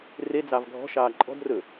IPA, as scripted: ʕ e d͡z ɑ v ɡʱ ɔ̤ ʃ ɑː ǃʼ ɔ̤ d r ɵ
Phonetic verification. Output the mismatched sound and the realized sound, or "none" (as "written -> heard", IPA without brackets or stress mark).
ʕ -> r